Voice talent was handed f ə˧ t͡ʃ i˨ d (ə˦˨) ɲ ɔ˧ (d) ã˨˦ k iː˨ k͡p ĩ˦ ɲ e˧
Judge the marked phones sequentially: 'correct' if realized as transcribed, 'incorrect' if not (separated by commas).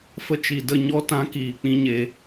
correct, incorrect